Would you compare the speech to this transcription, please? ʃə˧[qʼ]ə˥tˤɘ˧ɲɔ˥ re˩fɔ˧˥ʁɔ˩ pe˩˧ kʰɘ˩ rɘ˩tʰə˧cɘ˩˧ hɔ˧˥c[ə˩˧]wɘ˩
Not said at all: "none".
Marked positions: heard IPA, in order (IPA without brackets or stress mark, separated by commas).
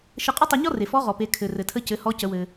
qʼ, ə˩˧